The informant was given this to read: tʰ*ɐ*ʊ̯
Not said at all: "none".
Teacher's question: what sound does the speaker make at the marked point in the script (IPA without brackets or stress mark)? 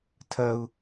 ɐ